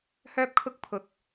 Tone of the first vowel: high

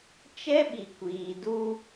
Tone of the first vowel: high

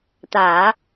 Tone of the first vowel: low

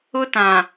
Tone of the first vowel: high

